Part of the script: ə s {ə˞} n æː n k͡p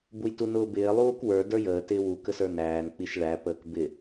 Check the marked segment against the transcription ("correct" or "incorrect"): correct